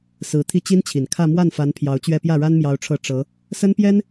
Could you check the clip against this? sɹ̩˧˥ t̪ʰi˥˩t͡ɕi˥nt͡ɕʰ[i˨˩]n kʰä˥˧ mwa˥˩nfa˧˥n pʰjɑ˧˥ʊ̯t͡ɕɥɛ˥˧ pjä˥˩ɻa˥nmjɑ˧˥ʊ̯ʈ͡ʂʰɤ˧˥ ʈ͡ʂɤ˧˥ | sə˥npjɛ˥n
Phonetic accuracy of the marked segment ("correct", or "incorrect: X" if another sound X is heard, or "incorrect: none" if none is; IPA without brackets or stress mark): correct